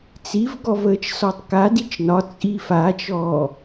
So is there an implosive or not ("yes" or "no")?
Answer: no